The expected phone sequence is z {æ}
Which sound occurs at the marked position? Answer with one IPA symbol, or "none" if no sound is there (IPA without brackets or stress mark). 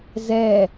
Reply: ɛ